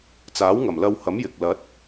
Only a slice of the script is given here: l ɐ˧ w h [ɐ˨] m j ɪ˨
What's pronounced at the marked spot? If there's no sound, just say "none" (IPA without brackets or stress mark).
ɐ˨˥